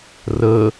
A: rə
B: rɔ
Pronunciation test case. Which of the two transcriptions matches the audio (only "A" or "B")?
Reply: A